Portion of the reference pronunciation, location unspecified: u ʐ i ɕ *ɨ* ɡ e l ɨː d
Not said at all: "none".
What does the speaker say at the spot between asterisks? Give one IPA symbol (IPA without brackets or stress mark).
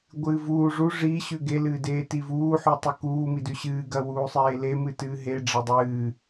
ʉ